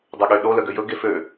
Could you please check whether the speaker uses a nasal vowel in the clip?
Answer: no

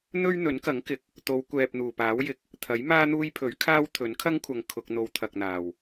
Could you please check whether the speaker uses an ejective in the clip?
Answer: no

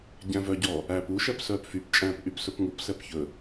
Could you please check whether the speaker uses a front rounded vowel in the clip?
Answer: yes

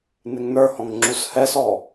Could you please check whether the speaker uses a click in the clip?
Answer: yes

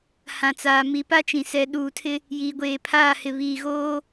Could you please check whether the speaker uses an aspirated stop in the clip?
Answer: yes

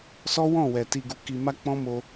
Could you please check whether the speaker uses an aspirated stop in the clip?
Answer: no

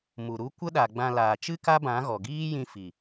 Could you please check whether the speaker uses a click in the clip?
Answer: no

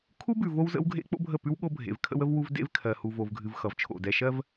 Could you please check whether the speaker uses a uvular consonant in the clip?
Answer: no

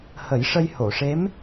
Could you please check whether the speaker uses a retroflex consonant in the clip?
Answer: yes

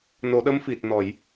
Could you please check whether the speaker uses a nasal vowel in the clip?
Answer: no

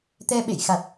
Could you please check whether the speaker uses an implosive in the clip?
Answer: yes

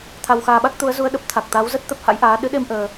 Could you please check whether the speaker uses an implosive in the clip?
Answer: yes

